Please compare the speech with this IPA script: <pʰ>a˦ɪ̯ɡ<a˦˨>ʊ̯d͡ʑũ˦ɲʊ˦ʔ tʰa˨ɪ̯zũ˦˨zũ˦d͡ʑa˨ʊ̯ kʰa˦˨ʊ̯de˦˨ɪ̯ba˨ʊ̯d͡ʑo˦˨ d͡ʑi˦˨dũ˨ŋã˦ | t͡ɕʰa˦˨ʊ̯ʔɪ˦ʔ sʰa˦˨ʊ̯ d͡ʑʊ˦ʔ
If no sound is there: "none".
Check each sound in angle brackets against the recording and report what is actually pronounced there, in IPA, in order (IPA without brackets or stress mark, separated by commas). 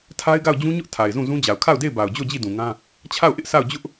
tʰ, a˦˨